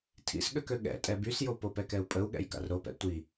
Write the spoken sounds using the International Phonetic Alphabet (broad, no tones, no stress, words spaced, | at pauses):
tʰḭsɠøkø ɠɛ̰ tʼɛbysjo popɛkɛu̯pʼəu̯ ɠɛ̰jka̰rɾopɛ̰ tʷi